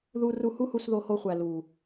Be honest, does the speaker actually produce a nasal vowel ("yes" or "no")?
no